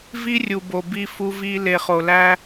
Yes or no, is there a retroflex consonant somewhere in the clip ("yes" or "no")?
no